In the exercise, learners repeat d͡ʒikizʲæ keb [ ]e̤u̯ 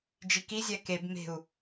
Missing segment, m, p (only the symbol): m